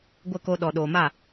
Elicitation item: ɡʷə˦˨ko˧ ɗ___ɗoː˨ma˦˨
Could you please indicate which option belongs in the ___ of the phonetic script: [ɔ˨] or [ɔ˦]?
ɔ˨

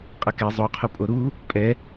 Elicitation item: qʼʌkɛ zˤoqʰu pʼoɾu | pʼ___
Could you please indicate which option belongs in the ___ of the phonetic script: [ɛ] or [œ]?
ɛ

